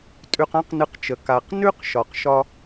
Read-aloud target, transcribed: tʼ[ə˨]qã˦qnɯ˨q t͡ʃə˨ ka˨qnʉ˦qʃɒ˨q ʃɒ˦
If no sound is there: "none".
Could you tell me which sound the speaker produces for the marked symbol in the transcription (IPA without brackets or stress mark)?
ʉ˨